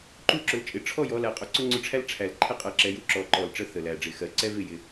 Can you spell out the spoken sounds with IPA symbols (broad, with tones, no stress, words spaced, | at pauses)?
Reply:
ǃu˥˨ǁʊ˨˦lt͡ʃʼɪ˨˦ ʈ͡ʂʰɔ˥˨jɔ˨˦læ˨˩qʼʊ˨˦ ǀʊ˥ŋ͡ǀʊ˥˨ʈ͡ʂʰæ˥l ʈ͡ʂʰæ˨˩l ǃʰɪ˥ qʼɜ˨˦ǁɛ˨˦ju˥˨ ǁɔ˨˦ǃɔ˨˩lʈ͡ʂə˥˨ θə˨˩læ˨˩ɖ͡ʐɪ˨˩xɜ˨˦ ǀɛ˥vɪ˥˨ jɪ˨˩